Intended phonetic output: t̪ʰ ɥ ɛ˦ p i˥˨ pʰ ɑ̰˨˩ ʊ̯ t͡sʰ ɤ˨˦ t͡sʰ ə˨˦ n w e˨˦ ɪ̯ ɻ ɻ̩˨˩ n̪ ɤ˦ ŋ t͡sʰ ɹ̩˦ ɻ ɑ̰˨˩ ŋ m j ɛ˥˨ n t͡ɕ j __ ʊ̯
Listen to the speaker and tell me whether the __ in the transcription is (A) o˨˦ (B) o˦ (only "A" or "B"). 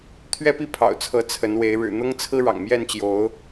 A